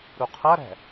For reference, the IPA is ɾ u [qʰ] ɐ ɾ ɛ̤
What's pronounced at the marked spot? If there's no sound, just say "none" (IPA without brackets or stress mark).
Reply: qʰ